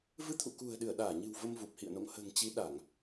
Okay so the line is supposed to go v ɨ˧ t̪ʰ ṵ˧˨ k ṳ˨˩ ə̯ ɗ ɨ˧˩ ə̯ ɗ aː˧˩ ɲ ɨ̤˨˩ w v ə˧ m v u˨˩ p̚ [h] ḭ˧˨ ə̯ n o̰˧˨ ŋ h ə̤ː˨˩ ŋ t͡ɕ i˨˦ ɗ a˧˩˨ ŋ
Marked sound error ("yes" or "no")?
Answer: no